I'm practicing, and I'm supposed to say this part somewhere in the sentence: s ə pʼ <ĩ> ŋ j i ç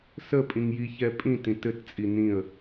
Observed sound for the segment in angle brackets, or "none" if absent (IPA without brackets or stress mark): ĩ